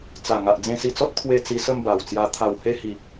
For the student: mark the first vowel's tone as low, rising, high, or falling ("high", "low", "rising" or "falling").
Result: low